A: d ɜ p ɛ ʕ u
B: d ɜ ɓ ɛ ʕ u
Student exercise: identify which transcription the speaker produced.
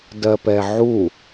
A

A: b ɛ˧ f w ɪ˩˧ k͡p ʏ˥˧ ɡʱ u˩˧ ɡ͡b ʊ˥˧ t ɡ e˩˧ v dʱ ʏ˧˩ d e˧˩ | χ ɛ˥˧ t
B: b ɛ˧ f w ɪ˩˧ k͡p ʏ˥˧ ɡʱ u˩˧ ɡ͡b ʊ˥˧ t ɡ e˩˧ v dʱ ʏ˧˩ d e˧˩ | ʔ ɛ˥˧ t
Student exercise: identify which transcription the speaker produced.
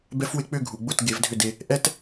B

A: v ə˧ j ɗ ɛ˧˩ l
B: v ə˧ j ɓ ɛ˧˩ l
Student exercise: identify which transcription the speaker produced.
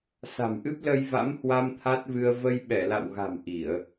B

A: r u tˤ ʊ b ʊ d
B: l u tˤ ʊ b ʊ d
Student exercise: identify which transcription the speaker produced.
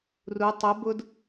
A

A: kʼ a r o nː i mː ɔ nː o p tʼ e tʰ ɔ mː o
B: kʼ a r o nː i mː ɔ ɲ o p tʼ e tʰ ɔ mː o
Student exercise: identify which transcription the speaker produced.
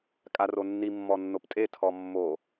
A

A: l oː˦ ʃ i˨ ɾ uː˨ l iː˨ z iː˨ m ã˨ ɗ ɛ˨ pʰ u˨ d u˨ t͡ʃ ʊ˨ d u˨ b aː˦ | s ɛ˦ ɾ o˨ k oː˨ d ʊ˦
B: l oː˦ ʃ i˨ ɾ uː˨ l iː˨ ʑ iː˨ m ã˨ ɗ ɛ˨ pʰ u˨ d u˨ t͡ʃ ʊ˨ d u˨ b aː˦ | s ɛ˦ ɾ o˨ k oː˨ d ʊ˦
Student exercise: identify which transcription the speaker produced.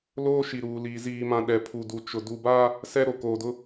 A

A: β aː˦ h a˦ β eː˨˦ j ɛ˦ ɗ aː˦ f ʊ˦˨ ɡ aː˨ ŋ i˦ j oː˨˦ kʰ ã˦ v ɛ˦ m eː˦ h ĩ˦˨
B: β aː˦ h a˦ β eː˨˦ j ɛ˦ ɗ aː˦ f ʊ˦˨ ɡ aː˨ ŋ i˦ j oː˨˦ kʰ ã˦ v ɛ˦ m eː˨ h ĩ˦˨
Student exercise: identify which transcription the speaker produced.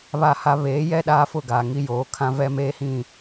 A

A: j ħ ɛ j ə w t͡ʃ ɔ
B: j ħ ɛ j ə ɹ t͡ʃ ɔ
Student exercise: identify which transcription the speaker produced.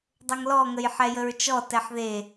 B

